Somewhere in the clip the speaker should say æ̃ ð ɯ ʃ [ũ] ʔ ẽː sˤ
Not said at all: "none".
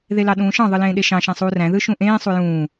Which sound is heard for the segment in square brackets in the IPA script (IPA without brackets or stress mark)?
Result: ũ